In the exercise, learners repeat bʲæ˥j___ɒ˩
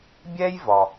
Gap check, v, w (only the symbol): v